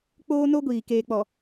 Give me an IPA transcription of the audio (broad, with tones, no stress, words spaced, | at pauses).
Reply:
k͡poː˦no˦ɡʷiː˨ keː˨k͡pɔ˨